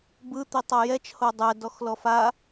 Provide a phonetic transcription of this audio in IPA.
bɯ t̪itˤajɛt͡ʃ hodˤɛ dɔxlɔfa

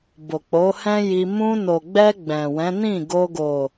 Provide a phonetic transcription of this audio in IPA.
bo˨k͡po˨˦hɛ̃˦ji˧ mũ˧no˨ɡ͡bɛ˧ ɡ͡bɛ̃˨wɛ̃˨˦ nĩ˦˨ɡo˧ ɡo˨

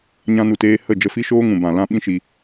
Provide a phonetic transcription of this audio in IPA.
ɲã˧nu˨teː˧ hə˦˨ d͡ʒə˧fi˦ʃoː˦ŋũ˨ bã˨lã˦ ɓĩ˦ʃi˧

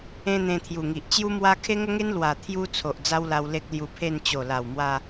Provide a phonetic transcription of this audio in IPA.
ẽ˦n̪ẽ˧t̪ʰju˨˩ŋi˨ʔ t͡ɕju˦ mwa˦ kʰe˦ŋə˦ŋe˦n lwa˨˩ t̪ʰju˦t͡sʰo˨ʔ d͡za˦wla˧w le˦k̚lju˧pʰe˥˧n t͡ɕo˨˩la˨˩wmwa˧

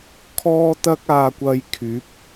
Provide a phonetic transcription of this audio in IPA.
kʰɔː˥t̪ɐ˥k̚aː˧kʷɐ˧j kʰyː˨˥p̚

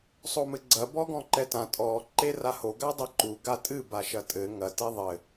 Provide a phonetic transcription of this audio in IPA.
sˤomɘɡ͡ǀɐ bɔɡɔ̃ǃɛtã tʼɔ ǃeraho ɡadˤeǃu ɡatʼɨ baʃɐtʼɘ ŋɐ teðˤɘ

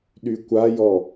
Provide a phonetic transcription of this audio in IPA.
ɗykʷajɔ

